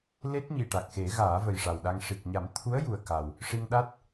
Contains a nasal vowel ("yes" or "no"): no